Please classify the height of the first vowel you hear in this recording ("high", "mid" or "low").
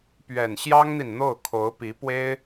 mid